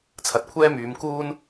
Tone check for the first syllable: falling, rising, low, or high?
low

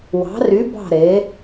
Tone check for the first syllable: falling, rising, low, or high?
rising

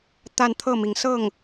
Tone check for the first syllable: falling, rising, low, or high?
falling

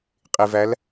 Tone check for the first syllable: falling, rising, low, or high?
low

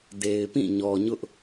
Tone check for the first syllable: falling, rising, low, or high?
low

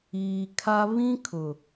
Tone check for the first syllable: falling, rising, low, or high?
low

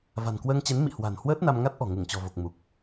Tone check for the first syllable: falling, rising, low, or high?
low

